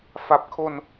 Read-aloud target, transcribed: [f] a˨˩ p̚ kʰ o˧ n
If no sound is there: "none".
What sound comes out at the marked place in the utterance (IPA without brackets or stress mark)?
f